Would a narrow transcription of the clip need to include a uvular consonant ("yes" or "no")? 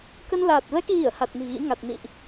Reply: no